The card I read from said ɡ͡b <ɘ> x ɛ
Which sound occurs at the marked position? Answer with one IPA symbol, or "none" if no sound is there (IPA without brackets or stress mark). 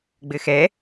ɘ